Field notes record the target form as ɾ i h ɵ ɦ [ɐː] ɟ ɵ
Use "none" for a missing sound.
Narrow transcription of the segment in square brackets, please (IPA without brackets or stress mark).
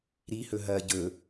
ɐː